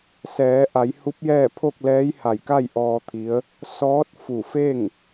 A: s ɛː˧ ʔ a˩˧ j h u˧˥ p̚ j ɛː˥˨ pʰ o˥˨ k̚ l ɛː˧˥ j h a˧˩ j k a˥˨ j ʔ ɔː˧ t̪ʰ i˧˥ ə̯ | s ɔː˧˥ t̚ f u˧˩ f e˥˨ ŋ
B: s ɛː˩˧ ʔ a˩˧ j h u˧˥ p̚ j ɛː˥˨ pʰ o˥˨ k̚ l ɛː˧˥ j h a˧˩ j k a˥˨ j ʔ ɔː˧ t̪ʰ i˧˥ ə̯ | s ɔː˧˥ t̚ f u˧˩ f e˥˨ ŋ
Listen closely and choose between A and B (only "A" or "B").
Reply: B